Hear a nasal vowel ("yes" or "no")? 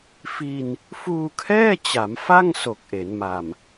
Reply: no